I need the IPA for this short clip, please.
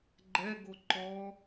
ɡ͡ǃ ɛ ɡ o ǃ ɔ

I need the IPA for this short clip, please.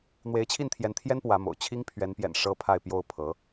n̪ w e˧˥ ɪ̯ t͡ɕʰ i˥˩ n t̪ʰ j ɛ˧˥ n t̪ʰ j ɛ˥ n p w ä˧˥ m o̰˨˩ ʊ̯ t͡ɕʰ i˥ ŋ pʰ ɥ ɛ˧˥ n p j ɛ̰˨˩ n ʂ ɤ˥ pʰ a˥˧ ɪ̯ p j o˥˩ ʊ̯ pʰ ɤ˧˥

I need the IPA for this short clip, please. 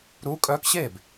ɾ uː˧˥ kʼ œː˧˥ k ɕ eː˥˩ b

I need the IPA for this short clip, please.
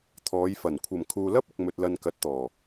t̪ʰ ɔː˨˧ j f ɐ˨˩ n kʷʰ ɐ˨˩ m kʰ uː˨ l ɐ˥ p̚ ɪ˨ k̚ m ɵ˧ t̚ l ɐ˧ n k ɐ˨˥ t̚ t̪ ɔː˨˩

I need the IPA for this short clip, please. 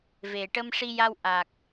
v e˨˩ ʈ ə˧ m ʂ i˧ j a˧ w ʔ a˨˩ k̚

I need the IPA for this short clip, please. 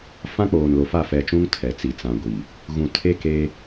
f ã˦ k͡p oː˨ n l o˨ f a˦˨ f ɛ˨ t͡ʃ ũ˦ ŋ tʰ ɛ˨ t͡s i˨ t͡s ã˨ ɡʷ i˨ | ɣ ũ˨ tʰ e˦ k e˦

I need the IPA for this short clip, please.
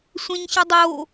sʷ ẽ ɲ ç ɨ dˤ o

